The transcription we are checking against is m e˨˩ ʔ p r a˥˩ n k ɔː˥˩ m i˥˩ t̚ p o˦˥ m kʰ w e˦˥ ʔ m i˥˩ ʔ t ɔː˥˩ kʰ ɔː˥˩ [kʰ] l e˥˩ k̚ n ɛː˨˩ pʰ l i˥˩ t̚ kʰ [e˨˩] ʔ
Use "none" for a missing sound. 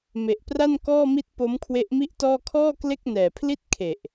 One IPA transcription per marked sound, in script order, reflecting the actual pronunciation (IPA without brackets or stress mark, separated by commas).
k, e˨˩